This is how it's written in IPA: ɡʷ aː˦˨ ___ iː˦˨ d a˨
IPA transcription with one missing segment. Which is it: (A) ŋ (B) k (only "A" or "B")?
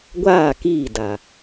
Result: B